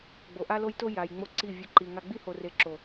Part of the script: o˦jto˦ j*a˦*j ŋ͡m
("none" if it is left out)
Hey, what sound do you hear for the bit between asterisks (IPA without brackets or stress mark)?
a˨